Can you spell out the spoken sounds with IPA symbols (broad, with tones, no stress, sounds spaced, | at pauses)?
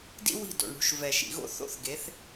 d ḭ˦ w i̤˦˨ d o̰˨ ɳ ɽ ṳ˨˦ ʃ v ɛ˨ ʃ ḭ˨ ɣ o̰˦ θ o̰˦ θ ɡ e˨˦ θ